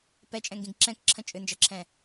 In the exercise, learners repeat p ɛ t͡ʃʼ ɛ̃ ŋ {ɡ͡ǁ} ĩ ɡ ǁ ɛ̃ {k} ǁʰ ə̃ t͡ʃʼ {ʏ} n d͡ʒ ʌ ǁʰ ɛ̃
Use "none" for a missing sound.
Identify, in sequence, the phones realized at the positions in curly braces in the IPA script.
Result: ɡ, k, ʏ

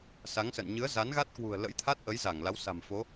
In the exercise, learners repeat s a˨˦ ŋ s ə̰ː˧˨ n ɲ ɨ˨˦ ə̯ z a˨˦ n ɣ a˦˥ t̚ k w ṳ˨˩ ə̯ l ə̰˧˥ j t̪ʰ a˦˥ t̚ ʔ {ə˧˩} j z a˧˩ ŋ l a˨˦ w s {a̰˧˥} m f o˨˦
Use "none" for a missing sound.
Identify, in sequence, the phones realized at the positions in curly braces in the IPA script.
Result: ə˨˦, a̤˨˩

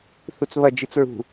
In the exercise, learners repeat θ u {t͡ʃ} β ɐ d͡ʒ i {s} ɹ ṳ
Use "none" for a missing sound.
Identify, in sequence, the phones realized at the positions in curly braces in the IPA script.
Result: t͡s, t͡s

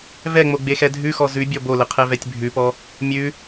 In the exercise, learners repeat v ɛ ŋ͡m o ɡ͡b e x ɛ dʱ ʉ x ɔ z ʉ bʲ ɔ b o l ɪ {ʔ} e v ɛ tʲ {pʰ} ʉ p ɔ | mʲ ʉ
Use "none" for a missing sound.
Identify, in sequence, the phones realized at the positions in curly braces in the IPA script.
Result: qʰ, bʱ

